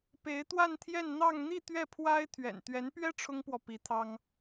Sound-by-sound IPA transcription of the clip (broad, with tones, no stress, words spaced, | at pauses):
pe˧˥ɪ̯t̪wa˥˧nt̪ʰjɛ˥˧n n̪ɑ˥˧ŋ n̪i˥˧ t̪ɥɛ˥˩pʰwa˥ɪ̯ t̪ʰɥɛ̰˨˩n t̪ɥɛ˧˥npɥɛ˥ ʈ͡ʂʰʊ˥ŋpwɔ˨ pi˧˥t̪ʰɑ˥ŋ